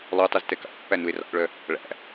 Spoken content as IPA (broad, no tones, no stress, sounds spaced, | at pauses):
lˠ o tˤ u z t ɛ k ɑ̰ ʔ pː æ n u e̯ r ɑ̰ ʔ ɭ œ | ɭ æ̰